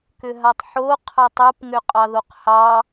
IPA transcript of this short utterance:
k ʏ ɦ a tˤ ħ o qʰ ɑ tˤ u p ŋ ʏ qʼ ɑ ð o q h ɑ

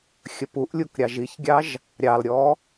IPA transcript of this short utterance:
xʲ ə p u ʔ lʲ u k ɾʲ ɑ ʒ i ç ɡʲ ɑ ʒ | ɾʲ ɑ l ɾʲ ɔ

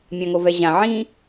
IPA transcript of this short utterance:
mʲ ã ŋ o v ɛ ʑ ã ʕ ĩ

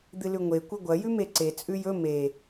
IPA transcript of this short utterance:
d̪ ɨ l ʉ ŋʷ e kʷ ɐ ɡʷ ɐ j ʉ m e ǀ e t͡sʼ ʉ j ɵ m e

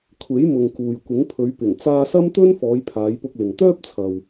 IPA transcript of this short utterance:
kʷʰ e˨˥ j m ʊ˨ ŋ k uː˨ j kʷ ɪ˨˥ ŋ pʰ ɵ˨˧ ɥ p ɪ˨˩ ŋ t͡s aː˧ s ɐ˥ m t̪ ɵ˥ n f ɔː˨˧ j pʰ aː˨˧ j p ʊ˧ k̚ l ɪ˨ ŋ t̪ œː˥ p̚ t͡sʰ ɐ˨ w

